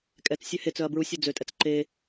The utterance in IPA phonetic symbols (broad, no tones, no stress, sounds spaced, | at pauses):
kʼ ɛ t͡s sʲ ø h e t͡s œ ɐ̯ b ɹ u sʲ u d͡z ø tʼ ɛ t͡s ǃ e